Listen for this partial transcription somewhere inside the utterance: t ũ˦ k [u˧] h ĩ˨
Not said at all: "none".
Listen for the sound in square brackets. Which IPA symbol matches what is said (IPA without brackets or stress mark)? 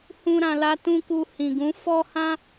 u˧